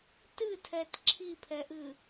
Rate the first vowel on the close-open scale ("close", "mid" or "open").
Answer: close